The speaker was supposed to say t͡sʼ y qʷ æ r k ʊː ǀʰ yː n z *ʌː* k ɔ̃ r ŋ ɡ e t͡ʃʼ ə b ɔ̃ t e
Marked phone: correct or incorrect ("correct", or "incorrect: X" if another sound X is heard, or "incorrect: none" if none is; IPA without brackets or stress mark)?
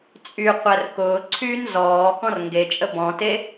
incorrect: ɔː